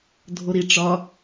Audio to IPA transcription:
dʱoɾi ʈ͡ʂɒ

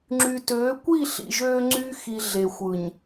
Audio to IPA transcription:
ŋ͡ǁy˨tøː˨˦kʷi˦˨ ɬḭ˨ʒøː˦ŋ͡ǀyː˦ xi˨ ɮe˨xʷɯ˨ɲ

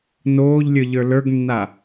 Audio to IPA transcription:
noːʎlʲə˞ ʎə˞lə˞ɡnːa

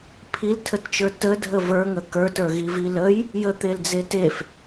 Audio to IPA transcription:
pʰiltʰətt͡ʃə˞ tədʱə və˞ŋə kə˞tə˞ɣivi ləj | jət̪eld͡ze tef

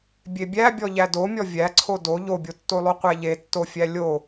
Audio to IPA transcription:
bʲebʲæbʲɔ ʎædomʲɔ vʲæǀʰo do ʎobʲotːolˠo qʷæʎetːofʲæ lʲo

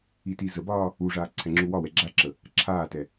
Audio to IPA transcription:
itizəbɒː | uʐaː ǀʰɛŋ͡ǁuwɒwɛ ɡ͡ǁaǁə | ǁʰaːtɛ

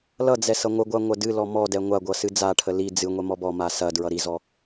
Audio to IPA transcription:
lʌd͡zɛ sʌŋʷəɡʷa ŋʷɐdɨlɔ mɔdɛ ŋʷaɡʷʌ sɨd͡zaʈʰə li d͡zɨŋʷɛ mɔbɔma sɐ dɹʌɾizɔ

